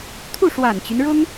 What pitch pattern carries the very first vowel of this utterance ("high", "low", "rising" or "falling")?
falling